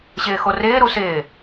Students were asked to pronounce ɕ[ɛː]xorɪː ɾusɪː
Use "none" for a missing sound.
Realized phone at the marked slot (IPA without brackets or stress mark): ɪː